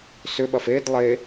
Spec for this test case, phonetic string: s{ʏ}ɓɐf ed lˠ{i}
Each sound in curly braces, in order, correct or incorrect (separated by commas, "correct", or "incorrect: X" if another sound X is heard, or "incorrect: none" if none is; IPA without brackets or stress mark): correct, incorrect: e